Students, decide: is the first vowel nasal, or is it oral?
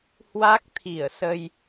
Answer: oral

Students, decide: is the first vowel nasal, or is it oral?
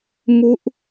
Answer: oral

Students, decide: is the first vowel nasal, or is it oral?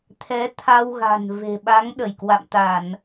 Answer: oral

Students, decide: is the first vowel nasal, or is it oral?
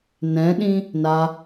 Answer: nasal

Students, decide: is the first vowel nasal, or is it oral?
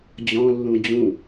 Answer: nasal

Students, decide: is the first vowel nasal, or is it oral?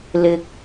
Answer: oral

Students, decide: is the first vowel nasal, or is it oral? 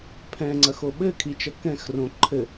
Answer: nasal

